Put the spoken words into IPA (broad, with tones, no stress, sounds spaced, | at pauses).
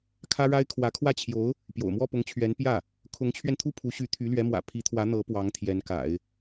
kʰ ä˥ ɻ a˥ ɪ̯ kʰ w ä˧˥ kʰ w ä˥˩ t͡ɕʰ j o˧˥ ʊ̯ | p j o̰˨˩ ʊ̯ m w ɔ˥˩ p ʊ˧˥ ŋ t͡ɕʰ ɥ ɛ˧˥ n p j ä˥˩ | kʰ ʊ˧˥ ŋ t͡ɕʰ ɥ ɛ˧ n t̪ʰ u˥˩ pʰ u˧˥ ɕ y˧˥ t̪ʰ y˧˥ l ɥ ɛ˧˥ m w ä̰˨˩ pʰ i˧˥ t̪ʰ w ä˧˥ n̪ ɤ˧˥ p w ɑ˧˥ ŋ t̪ʰ j ɛ˧˥ n k a̰˨˩˦ ɪ̯